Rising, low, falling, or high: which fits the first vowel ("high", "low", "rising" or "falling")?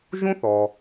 high